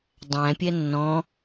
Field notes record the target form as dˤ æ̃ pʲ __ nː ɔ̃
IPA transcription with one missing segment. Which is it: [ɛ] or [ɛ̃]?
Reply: ɛ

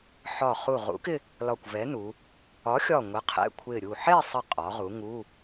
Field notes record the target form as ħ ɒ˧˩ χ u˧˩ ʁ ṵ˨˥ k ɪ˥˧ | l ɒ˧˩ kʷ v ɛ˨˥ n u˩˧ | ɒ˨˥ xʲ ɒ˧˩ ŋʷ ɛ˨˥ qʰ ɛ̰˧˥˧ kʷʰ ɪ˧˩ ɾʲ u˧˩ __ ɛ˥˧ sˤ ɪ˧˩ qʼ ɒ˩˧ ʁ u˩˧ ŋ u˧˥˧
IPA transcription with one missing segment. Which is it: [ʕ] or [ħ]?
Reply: ħ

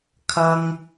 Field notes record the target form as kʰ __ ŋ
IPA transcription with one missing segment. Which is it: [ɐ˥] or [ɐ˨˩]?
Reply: ɐ˥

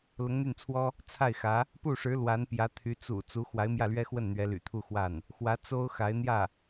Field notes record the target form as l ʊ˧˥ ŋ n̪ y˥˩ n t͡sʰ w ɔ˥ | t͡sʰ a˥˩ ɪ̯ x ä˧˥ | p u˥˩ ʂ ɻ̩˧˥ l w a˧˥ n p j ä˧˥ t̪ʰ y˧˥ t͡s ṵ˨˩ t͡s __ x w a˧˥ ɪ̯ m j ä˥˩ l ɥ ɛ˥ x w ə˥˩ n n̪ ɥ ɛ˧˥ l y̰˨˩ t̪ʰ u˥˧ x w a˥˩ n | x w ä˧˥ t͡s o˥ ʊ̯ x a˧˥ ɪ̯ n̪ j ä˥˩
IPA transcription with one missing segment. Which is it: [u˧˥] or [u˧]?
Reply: u˧˥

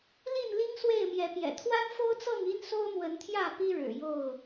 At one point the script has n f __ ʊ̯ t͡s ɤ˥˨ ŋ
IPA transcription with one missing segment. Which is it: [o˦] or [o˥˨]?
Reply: o˦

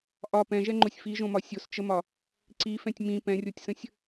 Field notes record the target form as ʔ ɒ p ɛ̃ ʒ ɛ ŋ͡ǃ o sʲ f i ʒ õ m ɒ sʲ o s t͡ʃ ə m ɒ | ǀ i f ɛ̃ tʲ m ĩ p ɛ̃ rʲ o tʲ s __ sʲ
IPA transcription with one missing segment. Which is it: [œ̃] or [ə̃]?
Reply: ə̃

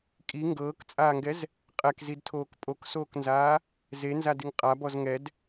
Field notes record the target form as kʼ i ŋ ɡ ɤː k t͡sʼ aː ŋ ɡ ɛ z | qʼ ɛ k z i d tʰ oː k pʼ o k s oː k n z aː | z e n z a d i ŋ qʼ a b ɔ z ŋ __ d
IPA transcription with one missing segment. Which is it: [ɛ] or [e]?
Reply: ɛ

